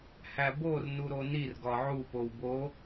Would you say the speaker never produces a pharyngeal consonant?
no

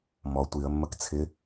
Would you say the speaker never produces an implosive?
yes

